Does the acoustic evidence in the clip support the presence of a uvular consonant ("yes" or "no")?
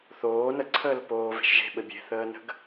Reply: no